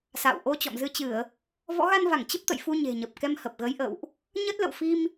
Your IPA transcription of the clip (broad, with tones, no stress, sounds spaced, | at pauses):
s a̰˧˨ w ʔ o˧ t͡ɕ ɔ̰˧˨ m z ɨ˧ t͡ɕ ɨ˧˩˨ ə̯ | v ɔ̰˧˥ ɣ a˧ n v a˧˩ ŋ t͡ɕ ə˦˥ p̚ t̪ ə̰˧˨ j f u˧ ɲ e̤˨˩ ɲ ə˨˩ p̚ k ɛ˧ m h ə˨˩ p̚ ɣ ə˨˦ j ʔ ə̰˧˨ w ʔ | ɲ ə˦˥ t̚ l ə̰˧˨ w f i˧ m